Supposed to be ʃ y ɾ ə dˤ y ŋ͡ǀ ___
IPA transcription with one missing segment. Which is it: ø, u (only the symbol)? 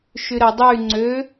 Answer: ø